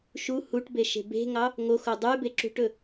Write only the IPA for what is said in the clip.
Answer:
ʃ u h u ʈ b e ʃ e̤ b e̤ ŋ ɑ | ŋ o x o dˤ y b e ǁ ṳ ʈ ɵ

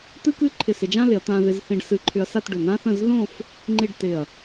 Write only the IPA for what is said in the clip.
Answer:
t̪ ɨ˥ k ɨ˥ ǃʰ ɪ˧˩ s ɪ˧ d͡ʒ ã˥ l ɪ˩˧ ɐ̯ t̪ ã˧ ð ɪ˧ z θ ĩ˧ ɖ s ɨ˧ ǃʰ ʏ˧ ɐ̯ s a˥˧ t ɖ ʏ˧˩ n ã˥ θ ə̃˥˧ z ð õ˥˧ f | ŋ͡ǃ i˥˧ ɖ t ɪ˧˩ ɐ̯

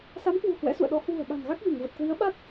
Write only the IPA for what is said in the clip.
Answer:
s a˨˦ m k w ṳ˨˩ h w ɛ̰˧˥ s ṵ˧˨ ə̯ ɗ ɔ˨˦ h w ṳ˨˩ ə̯ ɓ a̤˨˩ n ɣ a˦˥ k̚ v i˧˩ ŋ v ə˨˩ t̚ k w i˨˦ ə̯ ɓ a˦˥ t̚

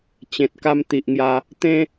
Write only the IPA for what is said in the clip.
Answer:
t͡ɕ ẽ˨ t̚ k a˧ m t̪ i˨ ʔ ŋ j a˧ | t̪ ẽ˧

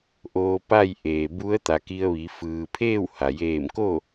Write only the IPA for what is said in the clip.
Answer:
ʔ oː˧ p a˥˨ j ʔ eː˩ b u˧˥ ə̯ t̪ a˩ k i˧ ə̯ ʋ i˩˧ f ɯː˩ pʰ eː˥˨ w h a˩ j eː˧˩ m k o˥˨

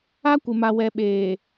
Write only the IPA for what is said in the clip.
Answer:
a˦ kʷ ɪ˨ m a˨ w ɛ˨ ɓ eː˨

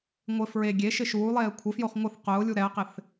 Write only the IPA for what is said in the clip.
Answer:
ŋʷ ɪ f ɹ e ɡʲ e ʃ ɪ ʃ uː lˠ eː kʷʰ ɪ f j o χ ŋʷ ə θ q ʊː lʲ u ɾ ɛ ə̯ q ɪ θ

